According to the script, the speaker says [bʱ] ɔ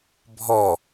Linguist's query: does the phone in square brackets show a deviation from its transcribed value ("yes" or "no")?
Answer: no